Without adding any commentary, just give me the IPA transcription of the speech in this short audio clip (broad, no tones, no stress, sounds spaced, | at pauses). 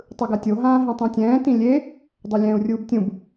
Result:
tˤ ɯ ɡ a tʲ o ɦ ãː ɦ ĩ tˤ ũ tʲ ɛ̃ː t ĩ lʲ e | dˤ ɛ lʲ ɛ̃ː u̯ rʲ uː b tʲ ũ b